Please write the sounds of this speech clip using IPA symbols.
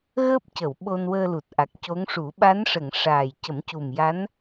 ɣ əː˦˥ p̚ c ə˨˩˨ w ɓ o˧ n w əː˧ l u˨˩ t̚ ʔ a˨˩ k̚ c o˧˥ ŋ ʂ u˨˩˦ ɓ a˧˥ n ʂ ə˨˩˨ ŋ ʂ aː˨˩ j c ə˨˩˦ m c u˨˩ m j a˧˥ n

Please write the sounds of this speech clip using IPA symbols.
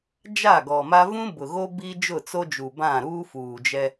d͡ʒ a˦˨ ɡ ɔ˨ m a˦ v ũ˦ b ʊ˨ ɣ o˦ b i˦ d͡ʒ ʊ˦˨ t͡s o˦ d͡ʒ u˨ b ã˦˨ ɾ uː˦ f uː˨ d͡ʒ ɛ˦

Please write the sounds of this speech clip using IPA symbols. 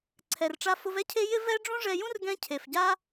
ǀʰ ɛ˧ r ʈ͡ʂ a˦ f ʊ˦ v ɛ˦ cʰ e˧ j ɪ˦ v ɛ˦ ɖ͡ʐ ũ˦ ʐ ɛ˧ j ũ˦ r ɡ ɛ̃˧ cʰ e˨ f ɟ a˦

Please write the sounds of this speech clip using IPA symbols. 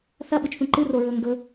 θ ɐ ɓ ɨ t͡ʃ θ ũ ǃ ɨ r o ɹ ɵː ŋ ɡ ɵ

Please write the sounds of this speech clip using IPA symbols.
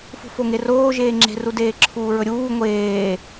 f ṳ f o ŋ e r oː ʒ eː ŋ͡ǁ e̤ r u d eː ǁʰ uː ɹ ɵ ɾʲ uː ŋʷ eː

